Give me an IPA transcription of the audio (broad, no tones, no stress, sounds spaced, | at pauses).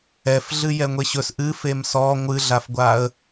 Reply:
ɛ f ɮ ɨ j ɛ ŋʷ e ɕ ɵ s ʔ ɨ f e m s ɔ ŋʷ ɨ ɮ a f ɡʷ a ə̯